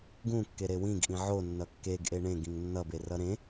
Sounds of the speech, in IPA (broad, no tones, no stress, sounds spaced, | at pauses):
ɡ ũ kː e ɾ e w ĩ ɡ ʔ ĩ ʕ o nː ʌ kː e ɡ ʔ e ɳ ẽ ɡ ĩ ŋ nː ʌ b e r ʌ ɾ ẽ